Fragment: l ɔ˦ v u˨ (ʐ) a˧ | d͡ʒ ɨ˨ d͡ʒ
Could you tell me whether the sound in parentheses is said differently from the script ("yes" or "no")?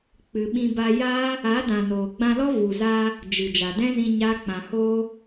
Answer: yes